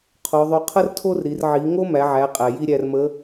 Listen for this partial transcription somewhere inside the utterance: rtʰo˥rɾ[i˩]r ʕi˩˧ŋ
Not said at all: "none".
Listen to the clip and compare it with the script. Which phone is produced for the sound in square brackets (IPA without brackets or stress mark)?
i˩˧